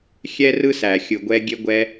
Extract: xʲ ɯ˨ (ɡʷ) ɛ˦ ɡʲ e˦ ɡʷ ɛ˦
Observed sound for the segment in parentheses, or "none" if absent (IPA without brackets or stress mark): ɡʷ